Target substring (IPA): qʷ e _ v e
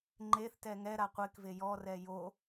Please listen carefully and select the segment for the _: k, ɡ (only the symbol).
k